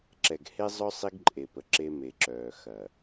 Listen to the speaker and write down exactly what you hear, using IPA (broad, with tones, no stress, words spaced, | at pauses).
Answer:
ǁɛ˨ɡhe˦zˤœ˦ sˤi˦ɡǃʼe˨pə˨ ǁe˦me˨ǁœː˨ xɐ˨